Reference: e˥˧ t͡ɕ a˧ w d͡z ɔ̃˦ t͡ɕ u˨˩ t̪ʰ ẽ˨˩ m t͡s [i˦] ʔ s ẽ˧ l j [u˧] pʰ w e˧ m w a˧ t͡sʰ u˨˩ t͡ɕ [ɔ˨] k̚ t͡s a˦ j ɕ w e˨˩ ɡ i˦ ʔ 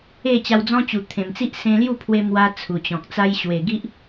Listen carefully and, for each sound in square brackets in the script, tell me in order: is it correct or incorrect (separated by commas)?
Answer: correct, incorrect, incorrect